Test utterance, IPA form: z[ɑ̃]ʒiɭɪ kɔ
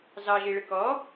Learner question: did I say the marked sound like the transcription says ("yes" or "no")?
no